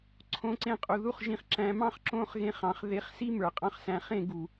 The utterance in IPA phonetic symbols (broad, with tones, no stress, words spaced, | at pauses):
ǀʰõ˨˦ǀẽ˧qʼu˨ ðu˦χʒĩ˧χǁæ̃˧mɑ̃˦χ ǁõ˦˨χɣẽ˧χɑ̃˨χ ðe˨˦χsi˦mə˞˨ qʼɑ̃˧χsæ̃˨χẽ˦˨ ɡu˨